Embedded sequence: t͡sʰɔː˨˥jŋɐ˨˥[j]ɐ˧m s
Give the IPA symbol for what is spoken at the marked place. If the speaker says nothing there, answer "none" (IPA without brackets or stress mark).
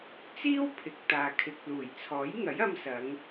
j